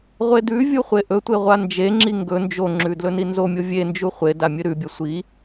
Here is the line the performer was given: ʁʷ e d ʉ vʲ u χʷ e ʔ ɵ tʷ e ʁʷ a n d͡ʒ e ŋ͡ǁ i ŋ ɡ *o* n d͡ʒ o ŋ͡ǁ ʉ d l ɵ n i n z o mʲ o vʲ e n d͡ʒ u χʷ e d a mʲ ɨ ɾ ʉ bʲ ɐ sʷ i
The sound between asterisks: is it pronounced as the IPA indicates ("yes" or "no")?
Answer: no